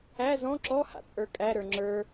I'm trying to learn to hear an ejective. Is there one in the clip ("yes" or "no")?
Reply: yes